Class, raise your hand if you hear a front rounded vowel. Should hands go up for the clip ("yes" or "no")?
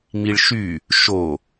yes